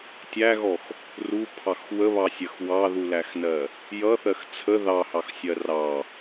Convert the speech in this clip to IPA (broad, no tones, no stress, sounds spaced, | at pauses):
tʲ æ ɣ ɔ x | r u pʰ ɑ x w ə β ɑ sʲ ɜ x w ɑ ð u l æ x n ɜ | j ʌ θ ɜ x t͡sʰ ə ð ɑ h ɑ x sʲ ɜ r ɑ